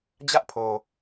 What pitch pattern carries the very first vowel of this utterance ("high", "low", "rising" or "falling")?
high